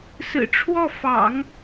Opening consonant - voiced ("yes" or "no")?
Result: no